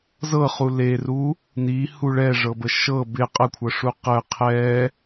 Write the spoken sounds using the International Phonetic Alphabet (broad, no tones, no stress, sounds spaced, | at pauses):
z ɤ χ u l e r u | n i h u ɭ ɛ ʐ ɤ b ə ʃ ɤ b ɪ qʼ ə kʷʰ ɤ ʂ u q ə qʰ ɛ